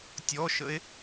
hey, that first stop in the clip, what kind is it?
plain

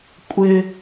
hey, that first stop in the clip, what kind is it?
ejective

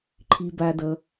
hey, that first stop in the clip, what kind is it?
click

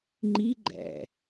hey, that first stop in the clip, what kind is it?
click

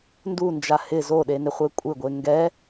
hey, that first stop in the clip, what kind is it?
plain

